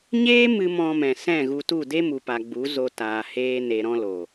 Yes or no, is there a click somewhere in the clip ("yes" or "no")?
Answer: no